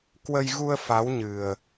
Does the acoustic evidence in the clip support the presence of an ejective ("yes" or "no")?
no